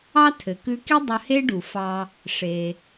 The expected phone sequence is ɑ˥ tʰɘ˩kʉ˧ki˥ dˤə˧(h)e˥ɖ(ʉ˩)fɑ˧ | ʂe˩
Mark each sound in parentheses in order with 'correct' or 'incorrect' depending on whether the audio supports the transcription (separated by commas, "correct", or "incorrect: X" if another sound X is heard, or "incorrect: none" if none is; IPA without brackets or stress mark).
correct, incorrect: u˩